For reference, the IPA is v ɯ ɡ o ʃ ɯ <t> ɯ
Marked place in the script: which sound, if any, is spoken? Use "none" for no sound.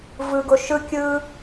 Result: kʲ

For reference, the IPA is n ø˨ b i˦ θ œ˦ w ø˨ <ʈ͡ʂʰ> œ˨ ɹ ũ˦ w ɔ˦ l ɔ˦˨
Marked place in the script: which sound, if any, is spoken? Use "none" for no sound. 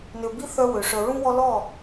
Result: ʂ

